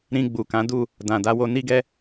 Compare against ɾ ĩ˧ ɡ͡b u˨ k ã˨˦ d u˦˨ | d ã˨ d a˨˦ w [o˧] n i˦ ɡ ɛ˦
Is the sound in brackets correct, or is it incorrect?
correct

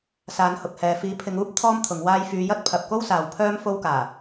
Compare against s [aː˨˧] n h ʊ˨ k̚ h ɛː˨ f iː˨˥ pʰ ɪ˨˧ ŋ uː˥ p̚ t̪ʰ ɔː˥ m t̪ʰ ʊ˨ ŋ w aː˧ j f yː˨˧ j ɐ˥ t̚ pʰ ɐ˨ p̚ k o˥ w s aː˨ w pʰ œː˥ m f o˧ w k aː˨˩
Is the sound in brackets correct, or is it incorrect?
correct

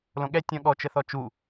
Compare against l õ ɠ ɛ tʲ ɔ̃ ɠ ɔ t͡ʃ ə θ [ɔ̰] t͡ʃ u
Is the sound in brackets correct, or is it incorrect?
incorrect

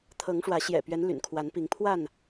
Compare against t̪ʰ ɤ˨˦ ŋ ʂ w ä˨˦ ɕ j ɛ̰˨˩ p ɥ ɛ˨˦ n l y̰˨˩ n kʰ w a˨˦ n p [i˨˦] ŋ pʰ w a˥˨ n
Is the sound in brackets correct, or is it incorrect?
correct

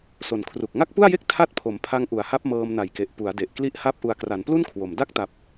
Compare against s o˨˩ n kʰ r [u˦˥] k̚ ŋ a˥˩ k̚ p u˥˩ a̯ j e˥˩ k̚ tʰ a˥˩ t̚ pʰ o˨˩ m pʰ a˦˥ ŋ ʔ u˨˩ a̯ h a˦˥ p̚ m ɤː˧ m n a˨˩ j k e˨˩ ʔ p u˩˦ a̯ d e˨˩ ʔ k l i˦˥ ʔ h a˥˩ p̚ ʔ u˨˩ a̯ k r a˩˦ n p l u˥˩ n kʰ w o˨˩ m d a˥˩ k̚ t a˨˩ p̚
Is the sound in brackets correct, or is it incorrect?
incorrect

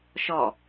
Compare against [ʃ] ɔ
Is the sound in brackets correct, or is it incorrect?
correct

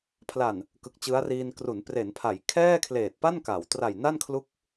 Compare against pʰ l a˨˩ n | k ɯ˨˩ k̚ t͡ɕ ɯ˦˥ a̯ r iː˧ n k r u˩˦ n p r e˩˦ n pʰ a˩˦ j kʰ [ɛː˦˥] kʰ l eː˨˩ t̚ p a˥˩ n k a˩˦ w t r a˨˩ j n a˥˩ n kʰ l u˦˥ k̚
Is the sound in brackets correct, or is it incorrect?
incorrect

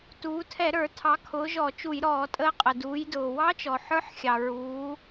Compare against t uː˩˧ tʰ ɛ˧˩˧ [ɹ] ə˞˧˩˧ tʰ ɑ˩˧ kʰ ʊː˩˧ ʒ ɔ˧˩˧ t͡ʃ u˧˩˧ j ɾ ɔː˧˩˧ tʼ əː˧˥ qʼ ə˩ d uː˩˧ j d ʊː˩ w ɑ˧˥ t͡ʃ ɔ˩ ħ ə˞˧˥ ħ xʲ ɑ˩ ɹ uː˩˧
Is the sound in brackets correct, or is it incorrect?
incorrect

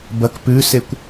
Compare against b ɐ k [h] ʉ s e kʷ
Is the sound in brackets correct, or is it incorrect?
incorrect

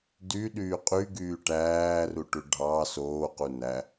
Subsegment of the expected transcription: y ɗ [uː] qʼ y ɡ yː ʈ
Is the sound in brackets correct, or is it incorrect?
incorrect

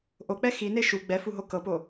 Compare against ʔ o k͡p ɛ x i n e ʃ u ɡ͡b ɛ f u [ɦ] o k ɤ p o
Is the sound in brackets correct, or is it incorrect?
correct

